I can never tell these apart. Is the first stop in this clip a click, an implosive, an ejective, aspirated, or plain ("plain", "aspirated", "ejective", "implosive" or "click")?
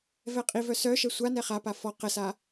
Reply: ejective